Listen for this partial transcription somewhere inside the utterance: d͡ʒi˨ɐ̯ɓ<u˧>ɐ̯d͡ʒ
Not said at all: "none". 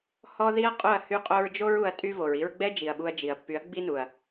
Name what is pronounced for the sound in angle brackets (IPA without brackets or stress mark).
u˧